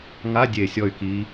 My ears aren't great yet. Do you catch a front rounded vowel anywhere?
yes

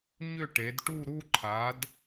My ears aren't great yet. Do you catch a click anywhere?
yes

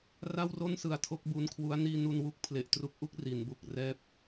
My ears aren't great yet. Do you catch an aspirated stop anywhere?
yes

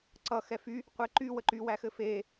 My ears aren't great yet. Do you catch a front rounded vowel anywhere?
yes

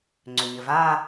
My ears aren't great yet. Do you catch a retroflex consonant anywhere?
no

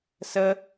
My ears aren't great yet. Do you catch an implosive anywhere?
no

